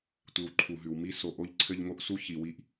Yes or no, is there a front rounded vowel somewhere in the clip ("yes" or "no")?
no